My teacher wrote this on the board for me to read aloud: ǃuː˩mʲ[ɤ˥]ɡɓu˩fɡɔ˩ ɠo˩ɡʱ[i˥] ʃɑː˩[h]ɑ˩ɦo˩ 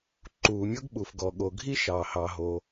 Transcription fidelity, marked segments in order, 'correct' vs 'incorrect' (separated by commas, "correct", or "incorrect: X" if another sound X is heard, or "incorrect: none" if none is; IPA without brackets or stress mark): correct, correct, correct